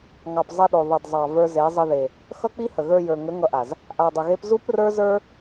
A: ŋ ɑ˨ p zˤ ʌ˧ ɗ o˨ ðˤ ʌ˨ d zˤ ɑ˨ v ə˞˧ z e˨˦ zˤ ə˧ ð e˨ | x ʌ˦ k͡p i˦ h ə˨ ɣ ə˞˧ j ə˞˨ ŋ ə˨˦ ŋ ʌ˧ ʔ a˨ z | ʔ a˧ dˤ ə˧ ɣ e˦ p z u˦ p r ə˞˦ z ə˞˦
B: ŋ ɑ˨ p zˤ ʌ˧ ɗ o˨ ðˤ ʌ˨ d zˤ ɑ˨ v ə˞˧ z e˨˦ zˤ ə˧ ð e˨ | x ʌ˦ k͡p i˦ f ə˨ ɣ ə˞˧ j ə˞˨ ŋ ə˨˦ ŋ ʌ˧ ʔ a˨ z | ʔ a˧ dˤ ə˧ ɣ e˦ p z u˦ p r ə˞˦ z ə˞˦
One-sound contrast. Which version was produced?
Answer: A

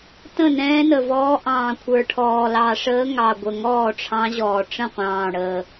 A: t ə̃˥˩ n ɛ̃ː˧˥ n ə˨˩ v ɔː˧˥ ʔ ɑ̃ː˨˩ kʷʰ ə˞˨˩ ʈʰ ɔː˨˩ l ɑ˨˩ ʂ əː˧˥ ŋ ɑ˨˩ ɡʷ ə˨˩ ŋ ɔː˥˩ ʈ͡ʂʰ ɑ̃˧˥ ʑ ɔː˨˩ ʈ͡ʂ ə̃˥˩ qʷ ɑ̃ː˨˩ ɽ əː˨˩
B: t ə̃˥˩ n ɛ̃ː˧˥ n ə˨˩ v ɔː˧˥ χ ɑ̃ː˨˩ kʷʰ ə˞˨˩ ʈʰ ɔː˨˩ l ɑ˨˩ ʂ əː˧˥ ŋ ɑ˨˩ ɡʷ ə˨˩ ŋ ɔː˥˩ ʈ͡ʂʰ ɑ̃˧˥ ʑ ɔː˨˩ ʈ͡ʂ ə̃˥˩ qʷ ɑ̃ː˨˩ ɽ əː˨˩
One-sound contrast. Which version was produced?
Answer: A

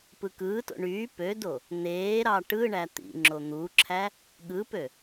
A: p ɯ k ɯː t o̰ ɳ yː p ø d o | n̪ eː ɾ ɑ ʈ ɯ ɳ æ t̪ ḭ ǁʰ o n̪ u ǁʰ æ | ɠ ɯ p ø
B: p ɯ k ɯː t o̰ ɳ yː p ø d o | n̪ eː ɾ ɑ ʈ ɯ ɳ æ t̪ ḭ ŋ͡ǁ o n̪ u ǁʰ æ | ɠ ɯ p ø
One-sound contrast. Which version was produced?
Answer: B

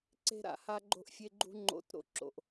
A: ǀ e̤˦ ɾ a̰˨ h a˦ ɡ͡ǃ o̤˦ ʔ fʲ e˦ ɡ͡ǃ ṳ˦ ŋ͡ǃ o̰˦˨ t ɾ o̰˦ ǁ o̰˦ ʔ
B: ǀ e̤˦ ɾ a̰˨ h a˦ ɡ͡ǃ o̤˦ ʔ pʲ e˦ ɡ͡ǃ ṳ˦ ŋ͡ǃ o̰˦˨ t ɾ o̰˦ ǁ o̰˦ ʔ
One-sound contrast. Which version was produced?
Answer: A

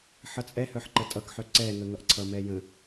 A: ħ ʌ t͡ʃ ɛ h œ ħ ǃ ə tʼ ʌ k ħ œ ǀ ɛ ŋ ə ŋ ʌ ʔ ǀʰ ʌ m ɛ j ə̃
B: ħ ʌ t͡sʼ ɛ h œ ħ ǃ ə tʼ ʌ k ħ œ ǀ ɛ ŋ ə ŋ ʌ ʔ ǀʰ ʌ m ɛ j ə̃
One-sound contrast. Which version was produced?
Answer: B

